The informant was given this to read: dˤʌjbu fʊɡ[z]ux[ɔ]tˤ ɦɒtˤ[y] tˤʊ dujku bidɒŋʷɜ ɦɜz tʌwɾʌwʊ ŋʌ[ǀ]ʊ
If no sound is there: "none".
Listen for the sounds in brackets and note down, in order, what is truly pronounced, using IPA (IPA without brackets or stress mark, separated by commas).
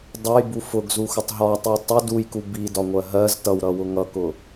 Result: z, ʊ, i, k